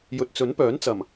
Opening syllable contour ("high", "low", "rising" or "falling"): low